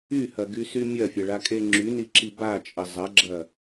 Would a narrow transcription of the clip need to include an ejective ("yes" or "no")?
yes